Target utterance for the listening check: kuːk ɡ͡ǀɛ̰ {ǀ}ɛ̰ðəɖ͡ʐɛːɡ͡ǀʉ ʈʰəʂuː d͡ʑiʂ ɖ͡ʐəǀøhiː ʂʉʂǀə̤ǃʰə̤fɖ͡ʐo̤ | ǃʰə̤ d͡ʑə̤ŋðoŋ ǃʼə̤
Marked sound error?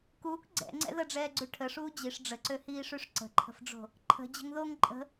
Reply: yes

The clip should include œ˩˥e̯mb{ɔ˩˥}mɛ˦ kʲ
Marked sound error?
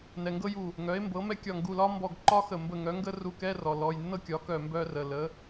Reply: yes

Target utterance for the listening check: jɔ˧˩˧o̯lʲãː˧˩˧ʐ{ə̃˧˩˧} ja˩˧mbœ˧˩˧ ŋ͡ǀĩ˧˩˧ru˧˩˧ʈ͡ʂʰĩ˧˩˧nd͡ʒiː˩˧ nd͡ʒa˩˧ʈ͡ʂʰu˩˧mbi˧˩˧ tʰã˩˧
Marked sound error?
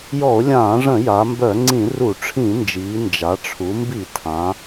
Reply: no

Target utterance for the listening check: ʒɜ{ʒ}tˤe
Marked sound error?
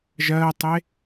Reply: yes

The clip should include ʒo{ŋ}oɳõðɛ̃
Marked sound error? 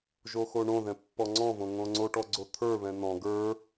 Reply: yes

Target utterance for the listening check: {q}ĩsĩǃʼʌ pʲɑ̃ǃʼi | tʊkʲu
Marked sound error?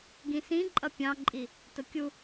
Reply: yes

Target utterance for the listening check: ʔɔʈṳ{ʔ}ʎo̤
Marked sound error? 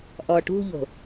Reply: yes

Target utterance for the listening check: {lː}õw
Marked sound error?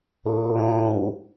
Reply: no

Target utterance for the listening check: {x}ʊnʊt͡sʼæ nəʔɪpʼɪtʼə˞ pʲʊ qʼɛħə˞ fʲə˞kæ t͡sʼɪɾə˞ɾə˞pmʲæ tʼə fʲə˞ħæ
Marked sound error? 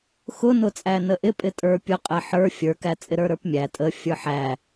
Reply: no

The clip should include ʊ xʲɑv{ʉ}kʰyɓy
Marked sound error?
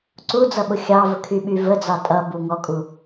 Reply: yes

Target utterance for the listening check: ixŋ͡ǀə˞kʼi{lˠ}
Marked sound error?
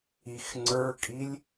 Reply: yes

